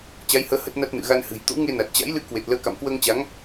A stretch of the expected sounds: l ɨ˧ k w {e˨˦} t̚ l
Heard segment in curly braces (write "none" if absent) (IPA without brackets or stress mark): e˨˩